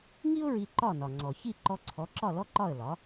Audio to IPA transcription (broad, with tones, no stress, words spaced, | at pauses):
ŋi˥ʊ̯ɹi˧ ǃɒ˥˩nɒ˩ŋ͡ǀɔ˩ çi˥˩ǃɔ˧ǀʰɔ˩˥ǁɒ˥˩ lɔ˥ǃɒ˥˩ə̯lɒ˩˥